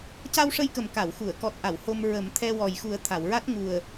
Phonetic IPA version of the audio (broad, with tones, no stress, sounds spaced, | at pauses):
c a˧ w ʂ ə˧ j k ə˨˩ m k a˨˩˨ w x u˨˩˨ ə̯ k ɔ˨˩ t̚ ʔ a˨˩˨ w h o˧ m ɹ ə˨˩˦ m t̪ʰ ɛ˧ w ɔ˨˩ j x u˨˩˦ ə̯ t̪ʰ a˨˩˨ w ɹ a˦˥ t̚ ŋ u˨˩ ə̯